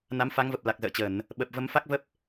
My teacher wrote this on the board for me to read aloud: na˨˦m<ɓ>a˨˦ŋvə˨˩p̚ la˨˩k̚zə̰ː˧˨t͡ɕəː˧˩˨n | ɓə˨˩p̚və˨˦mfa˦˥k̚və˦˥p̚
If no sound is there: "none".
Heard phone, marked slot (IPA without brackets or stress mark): f